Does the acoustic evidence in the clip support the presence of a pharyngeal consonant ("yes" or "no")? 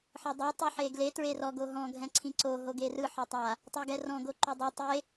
yes